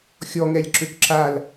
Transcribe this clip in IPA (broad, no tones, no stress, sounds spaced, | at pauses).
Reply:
xʲ ɔ ŋ ɛ lʲ ǁ ø k ǁ a l